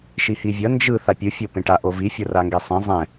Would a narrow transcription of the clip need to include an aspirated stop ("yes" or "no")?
no